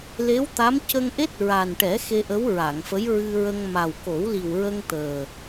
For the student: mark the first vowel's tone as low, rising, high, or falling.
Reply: rising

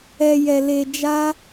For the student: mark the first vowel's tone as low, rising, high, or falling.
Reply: low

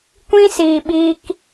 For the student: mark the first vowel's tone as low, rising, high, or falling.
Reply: high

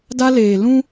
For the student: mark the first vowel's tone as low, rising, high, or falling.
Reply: high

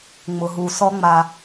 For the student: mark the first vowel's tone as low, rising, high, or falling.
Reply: low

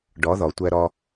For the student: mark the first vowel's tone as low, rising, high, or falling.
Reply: rising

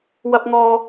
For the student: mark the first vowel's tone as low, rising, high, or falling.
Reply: high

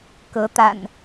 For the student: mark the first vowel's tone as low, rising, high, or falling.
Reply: rising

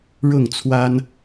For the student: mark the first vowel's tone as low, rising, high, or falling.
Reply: falling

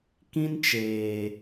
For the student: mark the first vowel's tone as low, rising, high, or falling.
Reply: high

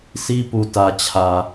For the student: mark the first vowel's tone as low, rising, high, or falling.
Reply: high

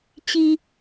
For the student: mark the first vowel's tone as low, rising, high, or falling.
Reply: low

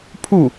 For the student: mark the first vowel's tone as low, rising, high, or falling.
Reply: falling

